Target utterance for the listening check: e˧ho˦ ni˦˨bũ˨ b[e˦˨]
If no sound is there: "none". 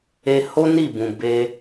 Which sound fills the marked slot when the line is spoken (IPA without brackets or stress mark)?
e˧